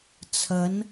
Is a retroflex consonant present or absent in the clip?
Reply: absent